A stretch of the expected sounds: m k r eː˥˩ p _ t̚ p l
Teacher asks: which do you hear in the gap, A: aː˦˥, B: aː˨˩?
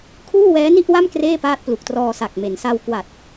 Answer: A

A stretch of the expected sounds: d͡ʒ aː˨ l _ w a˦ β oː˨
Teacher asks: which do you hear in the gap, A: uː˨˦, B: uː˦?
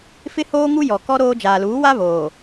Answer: A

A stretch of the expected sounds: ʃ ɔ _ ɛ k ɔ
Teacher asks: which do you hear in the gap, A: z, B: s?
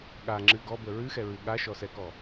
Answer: B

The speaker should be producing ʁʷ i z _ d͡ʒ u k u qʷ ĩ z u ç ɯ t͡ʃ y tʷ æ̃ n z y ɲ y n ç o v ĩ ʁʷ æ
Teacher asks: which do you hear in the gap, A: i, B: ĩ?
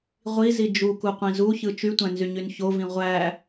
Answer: A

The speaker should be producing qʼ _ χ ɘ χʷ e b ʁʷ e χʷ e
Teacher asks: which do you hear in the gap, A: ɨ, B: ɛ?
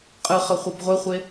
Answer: A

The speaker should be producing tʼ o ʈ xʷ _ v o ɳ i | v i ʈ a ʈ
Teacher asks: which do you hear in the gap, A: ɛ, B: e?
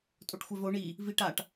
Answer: A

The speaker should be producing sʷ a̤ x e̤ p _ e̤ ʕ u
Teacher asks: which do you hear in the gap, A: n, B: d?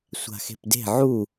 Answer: B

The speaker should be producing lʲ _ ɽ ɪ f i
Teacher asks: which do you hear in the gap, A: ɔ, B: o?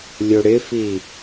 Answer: B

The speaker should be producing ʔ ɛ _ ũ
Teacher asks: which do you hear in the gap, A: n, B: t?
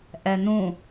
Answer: A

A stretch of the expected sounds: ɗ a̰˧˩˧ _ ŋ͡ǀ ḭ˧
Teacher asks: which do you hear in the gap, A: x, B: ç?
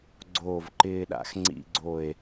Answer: A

